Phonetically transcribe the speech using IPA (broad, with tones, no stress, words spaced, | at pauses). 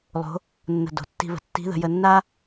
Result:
lˠo̤˧˥ | nːə̤˧do̤˩˧ tːi̤˧βə̤˩˧ tːi̤˧˥ðə̤˩˧ jə˧nːa˥